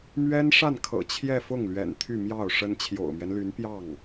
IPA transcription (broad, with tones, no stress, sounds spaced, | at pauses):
m ɥ ɛ˥ n ʂ a˥˩ n kʰ ɤ̰˨˩ t͡ɕʰ j ɛ˥˧ f ʊ˥˩ ŋ l ɥ ɛ̰˨˩ n t̪ʰ y˥˧ m j ɑ˥˩ ʊ̯ ʂ ə˥ n t͡ɕʰ j o̰˨˩ ʊ̯ m ɥ ɛ˦ n l y˧˥ n p j ɑ˥˩ ŋ